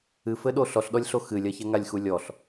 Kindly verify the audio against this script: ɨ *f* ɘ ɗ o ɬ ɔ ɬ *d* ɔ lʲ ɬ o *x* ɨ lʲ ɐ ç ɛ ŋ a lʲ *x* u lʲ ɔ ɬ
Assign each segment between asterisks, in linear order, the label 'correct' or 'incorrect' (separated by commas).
correct, incorrect, correct, correct